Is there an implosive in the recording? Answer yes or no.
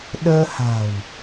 yes